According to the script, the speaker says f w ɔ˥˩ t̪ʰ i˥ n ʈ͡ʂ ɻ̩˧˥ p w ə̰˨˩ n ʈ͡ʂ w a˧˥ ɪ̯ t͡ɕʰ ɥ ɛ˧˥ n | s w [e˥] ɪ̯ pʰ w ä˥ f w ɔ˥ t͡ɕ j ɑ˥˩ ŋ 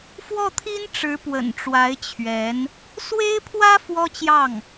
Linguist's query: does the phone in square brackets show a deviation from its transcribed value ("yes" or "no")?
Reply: no